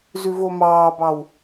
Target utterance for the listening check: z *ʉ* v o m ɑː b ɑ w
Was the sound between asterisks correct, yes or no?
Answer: yes